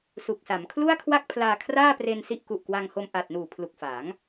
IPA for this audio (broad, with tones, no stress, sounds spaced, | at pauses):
s u˨˩ k̚ s a˩˦ m kʰ l u˥˩ a̯ kʰ w a˥˩ k̚ pʰ l aː˧ kʰ r aː˥˩ p r e˧ n s i˥˩ ʔ k u˨˩ ʔ k w a˧ ŋ h o˧ m ʔ a˨˩ t̚ n uː˨˩ pʰ l u˨˩ k̚ f a˩˦ ŋ